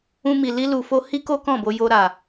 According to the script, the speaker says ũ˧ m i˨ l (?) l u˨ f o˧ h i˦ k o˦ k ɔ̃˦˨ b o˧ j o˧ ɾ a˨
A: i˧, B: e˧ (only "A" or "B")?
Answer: A